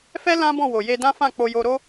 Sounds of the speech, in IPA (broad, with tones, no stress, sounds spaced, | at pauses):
f ɛ˦ l ã˦ b ɔ̃˦˨ w o˨ j e˧ d ã˦ f ã˦˨ k͡p o˧ j o˧ ɾ o˦